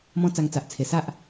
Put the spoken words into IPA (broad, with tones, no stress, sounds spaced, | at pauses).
m ɔ̃˧ t͡s a˧ ŋ t͡s a˨ ʔ t͡sʰ e˨˩ s a˦ ʔ